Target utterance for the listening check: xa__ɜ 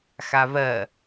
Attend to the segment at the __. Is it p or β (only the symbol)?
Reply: β